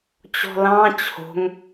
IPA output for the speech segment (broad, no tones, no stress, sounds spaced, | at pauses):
t͡ɕ ɔ̤ l ɑ̃ t͡ɕʰ o̤ ŋ